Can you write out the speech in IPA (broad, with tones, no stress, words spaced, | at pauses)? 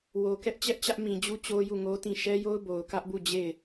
wo˨ kɛ˦ʔ t͡ɕɛ˦ʔt͡ɕä˦ʔmĩ˨d͡ʑu˦ t͡ɕo˦ju˦˨ŋo˦tĩ˦˨ ʃɛ˦jo˦ʊ̯ bo˨ʊ̯kä˦ʔbu˦˨d͡ʑe˦˨ɪ̯